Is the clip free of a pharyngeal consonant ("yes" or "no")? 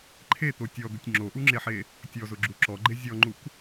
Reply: no